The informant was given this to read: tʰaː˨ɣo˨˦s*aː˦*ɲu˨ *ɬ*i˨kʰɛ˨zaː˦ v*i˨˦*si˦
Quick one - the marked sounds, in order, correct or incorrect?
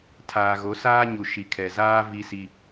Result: correct, incorrect: ʃ, incorrect: i˦

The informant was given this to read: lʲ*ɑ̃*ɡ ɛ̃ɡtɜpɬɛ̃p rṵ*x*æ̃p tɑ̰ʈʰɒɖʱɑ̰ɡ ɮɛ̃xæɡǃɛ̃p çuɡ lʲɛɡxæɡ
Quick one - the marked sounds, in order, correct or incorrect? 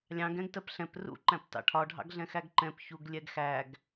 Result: correct, incorrect: ǃ

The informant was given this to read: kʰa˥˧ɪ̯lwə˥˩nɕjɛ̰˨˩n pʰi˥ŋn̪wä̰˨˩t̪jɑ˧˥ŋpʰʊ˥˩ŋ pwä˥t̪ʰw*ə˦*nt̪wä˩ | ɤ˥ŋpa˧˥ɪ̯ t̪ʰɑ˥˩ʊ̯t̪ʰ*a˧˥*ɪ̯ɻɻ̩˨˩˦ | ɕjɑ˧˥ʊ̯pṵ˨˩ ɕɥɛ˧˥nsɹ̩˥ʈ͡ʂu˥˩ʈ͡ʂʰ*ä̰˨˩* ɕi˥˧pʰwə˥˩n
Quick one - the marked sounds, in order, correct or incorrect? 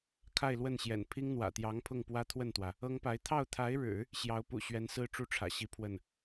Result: incorrect: ə˥˩, correct, correct

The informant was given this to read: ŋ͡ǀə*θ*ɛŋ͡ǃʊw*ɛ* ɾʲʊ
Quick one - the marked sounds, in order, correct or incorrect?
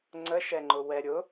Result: incorrect: ʃ, correct

